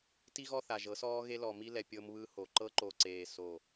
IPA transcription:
t i˦ ɣ ɔ˦ θ a˨ ʒ ɤ˨˦ s ɔː˦ ɣ e˦ l ɔ˨ m i˦ l ɛ˨ pʲ ɤ˦ m β ɯ˦ h o˨ ǃ ɤ˦ ǃ o˨ ǀ eː˨ s o˨

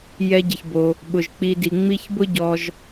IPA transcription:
j ɛ˨ ɟ ɪ˩ ç b o˩ | ɓ ʊ˩ ʒ k͡p i˨ d i˩ ŋ͡m i˦ ç b ʊ˥ ɟ ɔ˨ ʒ

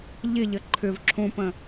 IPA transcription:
ʎ ɪ ʎ ə ǃʰ ʏ v ǁʰ ũ p ə̃

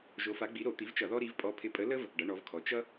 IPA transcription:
ʒ o˨˦ f a˨˦ ɡ͡b i˨˦ ɾ o˧˩˧ t̪ i˨˦ v t͡ʃ ʌ˧˩˧ ð ɔ˦ ɾ i˨˦ v pʼ ɔ˨˦ pʰ ɪ˨˦ pʼ ə˨˦ l ə˦ v | ɖ ʌ˨˦ ɳ ɔ˨˦ v kʰ ɔ˨˦ t͡ʃ ʌ˦

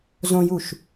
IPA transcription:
z õ j u ʃ

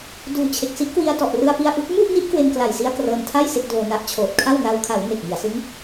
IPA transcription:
d uː˨˩ t͡ɕʰ e˨˩ k̚ s i˦˥ ʔ k w i˧ a̯ t ɔ˨˩ ʔ r ɯ˧ a̯ p i˧ a̯ ʔ u˦˥ k̚ m u˥˩ ʔ n i˦˥ ʔ k w e˧ n k l a˨˩ j s i˧ a̯ k r ɤː˧ n tʰ a˥˩ j s e˥˩ k̚ d oː˧ n a˥˩ ʔ t͡ɕʰ oː˨˩ t̚ kʰ a˥˩ w n a˧ w kʰ a˩˦ w n e˨˩ k̚ m i˩˦ a̯ s ɯ˦˥ ŋ

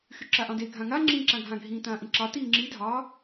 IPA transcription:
x y ǁ a ʔ ɑ̃ d e ɡʱ ã ŋ a ŋ͡ǁ ĩː ǁ ã ɡʱ ã ɡʱ ĩː t ãː ʔ ĩ ǁ ɑ t iː ŋ͡ǁ i dʱ ɑ

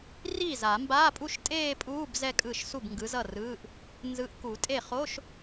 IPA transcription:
r iː˥˩ z a˨˩˦ m b aː˧˥˧ pʼ u˥˧ ʃ tʼ eː˥˧ pʼ uː˧˥˧ b z ɛ˥˧ kʼ ɯː˥˩ ʃ s u˥˩ b ŋ ɡ ɯ˨˥ z ʌ˥˩ r ɯː˧˥˧ ʔ | n z ɯ˨˥ ʔ k u˨˩˦ tʼ e˥˩ χ o˧˥˧ ʃ

